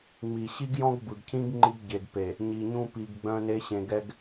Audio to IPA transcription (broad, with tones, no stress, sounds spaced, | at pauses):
ŋ͡m i˨ ɕ i˦ ɡ j ɔ̃˦ ɡ b ɯ˨ ɡ cʰ ĩ˦ ɡ ŋ͡ǃ i˦ ɡ ɟ e˨ ɡ p e˨ | ɲ i˨ ɲ ũ˦ p i˨ ɡ ɡ͡b œ̃˦ n e˦ ɕ ẽ˨ ɡ ɛ˦ ɡ